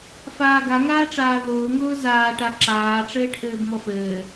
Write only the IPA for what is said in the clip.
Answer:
f aː ɡ a ŋ aː ʈ͡ʂ aː ð ʊː ŋ ʊː z aː ʈ a ǁ aː ʈ͡ʂ ɘː ʈ ʔ ɘː b m ɔ f ɘː

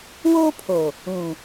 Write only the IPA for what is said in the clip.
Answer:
w oː˦ pʰ o˨ | ũ˨

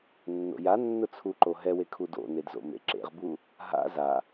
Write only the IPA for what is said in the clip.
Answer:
nː o̰ j a nː ʊ t͡sʰ u ǃ o ɦ ɛ w e kʰ u d o̰ n e d z o̰ m ḛ ǁ ḛ ʁ b u | ɦ a̰ z a

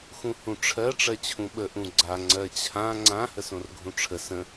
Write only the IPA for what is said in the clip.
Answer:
x ũ h ũ ʈ͡ʂʰ ɜ ʈ͡ʂ ɜ t͡ɕʰ ũ ɓ ə ʔ ũ ɡ͡ǀ a ŋ͡ǀ ɜ t͡ɕʰ ã ŋ͡ǀ ã h ə s õ r ɡʱ ũ ʈ͡ʂʰ ə s ə̃

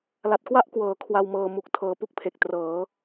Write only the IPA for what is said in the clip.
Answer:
l a˨˩ t̚ k w a˥˩ ʔ k w ɤː˩˦ kʰ w a˧ w m ɤː˧ m u˨˩ k̚ tʰ ɤː˨˩ p u˥˩ k̚ pʰ e˨˩ k̚ t r ɤː˩˦

